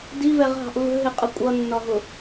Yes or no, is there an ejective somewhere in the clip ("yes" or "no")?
yes